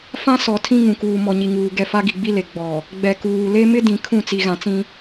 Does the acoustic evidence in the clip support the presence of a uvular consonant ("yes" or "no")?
no